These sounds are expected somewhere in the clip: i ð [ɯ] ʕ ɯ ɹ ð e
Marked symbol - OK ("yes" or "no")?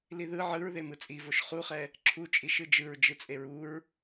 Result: yes